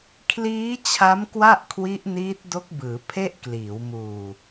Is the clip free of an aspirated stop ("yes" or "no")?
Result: no